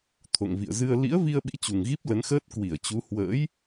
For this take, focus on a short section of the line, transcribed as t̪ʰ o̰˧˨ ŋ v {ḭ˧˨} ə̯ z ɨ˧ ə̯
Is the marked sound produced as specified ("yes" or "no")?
yes